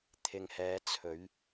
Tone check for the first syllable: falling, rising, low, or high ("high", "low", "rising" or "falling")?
low